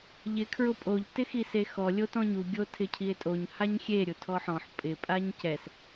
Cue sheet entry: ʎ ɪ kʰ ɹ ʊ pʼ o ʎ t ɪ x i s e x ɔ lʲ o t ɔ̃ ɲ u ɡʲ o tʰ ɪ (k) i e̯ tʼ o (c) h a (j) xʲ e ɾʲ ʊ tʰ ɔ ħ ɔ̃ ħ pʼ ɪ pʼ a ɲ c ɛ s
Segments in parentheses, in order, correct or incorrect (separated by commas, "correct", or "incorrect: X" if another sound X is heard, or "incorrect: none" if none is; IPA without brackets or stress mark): incorrect: cʰ, incorrect: ɲ, incorrect: ɲ